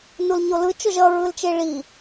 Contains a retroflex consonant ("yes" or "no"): yes